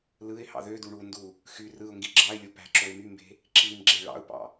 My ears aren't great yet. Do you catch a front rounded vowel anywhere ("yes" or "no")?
yes